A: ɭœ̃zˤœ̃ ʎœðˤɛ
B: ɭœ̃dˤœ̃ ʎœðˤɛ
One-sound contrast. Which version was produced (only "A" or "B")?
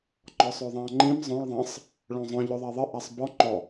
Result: A